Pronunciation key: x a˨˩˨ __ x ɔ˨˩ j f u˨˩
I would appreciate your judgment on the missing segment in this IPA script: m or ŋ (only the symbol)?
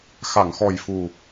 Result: ŋ